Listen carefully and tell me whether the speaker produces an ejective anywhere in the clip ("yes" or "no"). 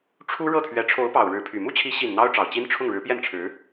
no